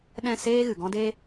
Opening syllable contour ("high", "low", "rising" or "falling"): falling